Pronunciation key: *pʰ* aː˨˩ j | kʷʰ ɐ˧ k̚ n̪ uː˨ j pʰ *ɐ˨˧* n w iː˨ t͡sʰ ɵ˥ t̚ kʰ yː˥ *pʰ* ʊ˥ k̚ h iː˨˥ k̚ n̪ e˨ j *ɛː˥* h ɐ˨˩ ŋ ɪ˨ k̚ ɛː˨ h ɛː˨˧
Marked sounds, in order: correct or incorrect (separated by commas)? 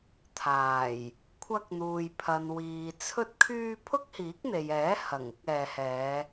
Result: incorrect, incorrect, correct, incorrect